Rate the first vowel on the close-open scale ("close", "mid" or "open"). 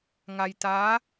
open